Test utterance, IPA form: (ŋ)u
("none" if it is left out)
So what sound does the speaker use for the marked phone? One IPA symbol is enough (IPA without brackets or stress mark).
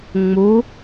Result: ŋ͡m